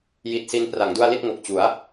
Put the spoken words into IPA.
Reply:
j i˦˥ t̚ s i˦˥ n p r a˩˦ ŋ d u˧ a̯ l i˥˩ t̚ ŋ o˨˩ k̚ t͡ɕ u˩˦ a̯

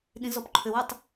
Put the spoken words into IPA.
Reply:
ɗ ĩ z ɔ p ǃʰ ø w ø tˤ

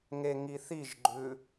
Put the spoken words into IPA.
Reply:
ŋ e ŋ i θ i ʒ ɡ͡ǃ ʉ

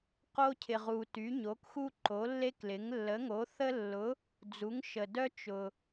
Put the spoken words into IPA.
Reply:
q o˥ cʰ ɪ˨ ʁ u˨ t y˨˥ ɲ o˨˥ k x u˥ ǃ o˨˥ lː e˥ k l ɪ˨˥ ŋ lː ə˨˥ ŋ o˨˥ θ ə˥ lː ʊ˨˥ | d͡z u˨˥ ŋ ʃ ə˨ d œ˥ t͡ʃ ʊ˨

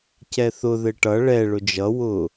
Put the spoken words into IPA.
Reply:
c ɛ θ ʊ ð ɘ ʈ ʌ ɭ ɛ ɭ ʊ d͡ʒ ʌ w ʊ

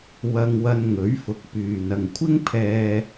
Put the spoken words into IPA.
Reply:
w ɐ˧ ŋ w ɐ˧ n ŋ ɵ˨˥ ɥ f ʊ˨˥ k̚ p yː˨ n ɐ˨ ŋ kʷʰ ɪ˥ ŋ pʰ ɛː˧

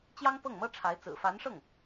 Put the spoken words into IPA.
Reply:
t͡ɕ j ɑ˥ ŋ p ɤ˥˩ ŋ m ɤ˥ ʈ͡ʂʰ a˧˥ ɪ̯ t͡s ɹ̩˨˩ f a˧˥ n ʂ ɤ˥˩ ŋ

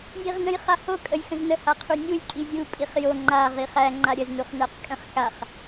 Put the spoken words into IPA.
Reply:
j i ʁ n ə̃ j χ a h o kʼ ə j x ə̃ z n ə h a qʰ u nʲ u j kʼ i zʲ u pʼ i χ j o ŋ͡ǃ a ʁ i χ æ ŋ͡ǃ a ɾʲ ə z n u χ n æ q kʼ ə̃ χ x a χ

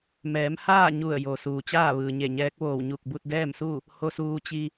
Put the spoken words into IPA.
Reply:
m ɛː˩˧ m h aː˥˨ ɲ u˧˩ ə̯ j o˩ s uː˩ t͡ɕ aː˥˨ ʋ ɯː˩ ɲ e˧˩ ɲ ɛː˧˥ k̚ ʋ oː˧˩ w ɲ u˧˩ k̚ b u˧ t̚ d ɛː˥˨ m s u˥˨ | h o˧ s uː˧ t͡ɕ i˧

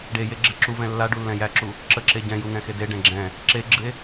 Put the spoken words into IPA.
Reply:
ɖ e j e ɡ͡ǁ ɪ ǁ u v ɛ̃ lː a ɖ u lː ɛ̃ j æ ǁ u | ǁ ə ǁ e ɟ ɛ̃ j u ŋ ɛ̃ x e d e ɖ ɛ̃ ɡ͡ǁ ɛ̃ | ǁ e ɡ͡ǁ ɨ e̯

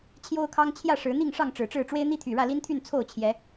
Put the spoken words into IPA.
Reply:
t͡ɕʰ j o˦ ʊ̯ kʰ ɑ˦ ŋ t͡ɕʰ j ä˥˨ ʂ ɻ̩˨˦ n̪ i˥˨ ŋ ʂ ɑ˥˨ ŋ ʈ͡ʂ ɻ̩˨˩ ʈ͡ʂ ɻ̩˥˨ ʈ͡ʂ w e˦ ɪ̯ n̪ i˦ t̪ʰ y˨˩ ɻ ä˥˨ l i˦ n t̪ʰ y˥˨ n t͡sʰ o˥˨ ʊ̯ t͡ɕʰ j ɛ˨˦

